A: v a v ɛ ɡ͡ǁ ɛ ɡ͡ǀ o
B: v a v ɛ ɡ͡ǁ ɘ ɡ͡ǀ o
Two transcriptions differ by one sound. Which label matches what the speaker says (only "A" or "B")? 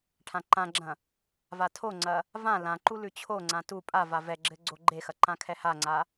B